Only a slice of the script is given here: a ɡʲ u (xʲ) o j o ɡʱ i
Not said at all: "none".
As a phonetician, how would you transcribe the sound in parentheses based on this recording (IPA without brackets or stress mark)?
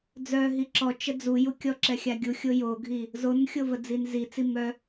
xʲ